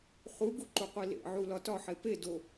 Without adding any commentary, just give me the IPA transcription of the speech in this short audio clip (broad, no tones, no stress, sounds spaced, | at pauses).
χ u ɡ u ǃ u qʷ i l ḛ ʕ u l ɒ t ɒ ħ e p e d o